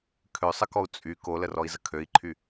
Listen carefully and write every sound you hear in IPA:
kʰ ø sˤ ə k ɔ u̯ t͡sʼ y k o l ə r ɔ i̯ z ə kʰ ø i̯ ǃʰ y

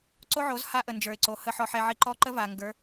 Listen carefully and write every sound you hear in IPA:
ǀ o˦ ʕ o˨˦ z h a˦ ʔ ə˨ n d͡ʒ ə˞˨ ɪ̯ ǀ o˨ h ə˨ ħ ɔ˨ ħ ɛ˨ ʕ i˨ ǃ ɔ˦ ǃ ə˦ v a˨ ŋ ɡ ə˞˨˦

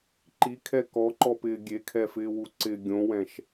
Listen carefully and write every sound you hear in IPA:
ǃ i kʰ ɛ k ɔ ǃ ɔ p ɪː ɡʲ e kʰ ɛ f ɪː w u ǀ ɪ ɡʲ õ w ɛ̃ ʃ

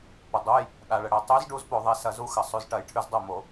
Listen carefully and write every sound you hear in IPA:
p ə˩ dˤ u˩˧˩ j | ɗ a˩ ɭ ə˩ ɽ ɛ˩ tˤ ʉ˨˥ z ɖ u˨˥ z p o˧˩˧ ðˤ ɛ˩˧˩ s ɐ˧˩˧ z u˨˥ x ə˩ sˤ ʉ˩˧˩ z ʈ ɐ˧˩˧ j ʈʰ ʉ˧˩˧ z dˤ o˥˩ m o˧˩˧

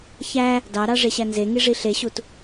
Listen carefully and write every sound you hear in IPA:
ç æ | d ɑ ɾ ɑ ʐ e ɕ æ n z e ŋ i ʐ i ɬ e ɕ u t

